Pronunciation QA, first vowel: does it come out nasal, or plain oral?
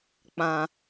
nasal